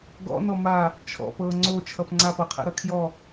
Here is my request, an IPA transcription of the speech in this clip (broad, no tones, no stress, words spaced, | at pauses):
ɡɔ̰nɔ ma | t͡ʃʰɔ̰pɤ ŋ͡ǀo t͡ʃʰʌpŋ͡ǀap ɤqʰɛ̰ ɾʌkʰjɔ